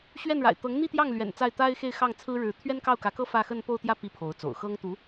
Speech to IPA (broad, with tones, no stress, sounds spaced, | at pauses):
ɕ ɥ ɛ˥˩ n ɻ a̰˨˩ ɪ̯ t̪ ɤ˧˥ ŋ n̪ i˥˧ t̪ j ɑ˥˩ ŋ l ɥ ɛ̰˨˩ n t͡s a˥˩ ɪ̯ t̪ a˥ ɪ̯ x e˥˧ ɪ̯ x ɑ˥˩ ŋ t͡sʰ ɹ̩˥ ɻ ɻ̩˧˥ t̪ʰ ɥ ɛ˥ n k ɑ˥˩ ʊ̯ k ä˧˥ k ɤ˥ f ä˥˧ x ə˥˧ n p o˥˧ ʊ̯ t̪ j ä˥˩ p i˥ pʰ o˧˥ ʊ̯ t͡s o̰˨˩ ʊ̯ x ɤ˥ ŋ t̪ u˧˥